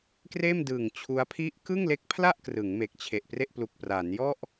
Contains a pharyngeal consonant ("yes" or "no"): no